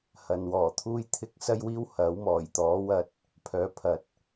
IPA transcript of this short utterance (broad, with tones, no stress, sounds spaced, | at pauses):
h ɐ˨ n w ɔː˨˩ t̪ʰ uː˥ j t̪ʰ ɪ˥ k̚ s ɐ˥ j w iː˥ w h ɐ˨˥ w m ɔː˨˩ j t̪ ɔː˨˥ w ɐ˧ t̚ | pʰ œː˨˧ pʰ ɐ˨ t̚